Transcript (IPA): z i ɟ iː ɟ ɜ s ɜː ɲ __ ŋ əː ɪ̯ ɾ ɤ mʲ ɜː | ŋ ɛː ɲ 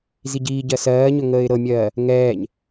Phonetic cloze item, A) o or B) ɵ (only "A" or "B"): B